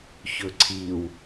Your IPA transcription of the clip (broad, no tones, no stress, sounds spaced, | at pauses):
ç ɵ ǀʰ i w